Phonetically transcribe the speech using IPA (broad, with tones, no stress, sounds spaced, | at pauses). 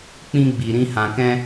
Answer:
k͡p ĩ˦ ɡ͡b i˧ ɾ ĩ˦ h ã˧ k ɛ̃˦